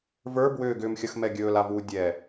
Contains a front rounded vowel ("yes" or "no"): yes